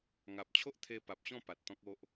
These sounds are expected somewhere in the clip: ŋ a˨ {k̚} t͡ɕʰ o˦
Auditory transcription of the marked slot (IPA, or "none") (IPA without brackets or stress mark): p̚